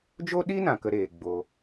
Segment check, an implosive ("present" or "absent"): present